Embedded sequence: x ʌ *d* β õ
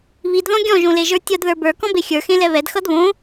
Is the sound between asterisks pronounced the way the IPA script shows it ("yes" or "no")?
yes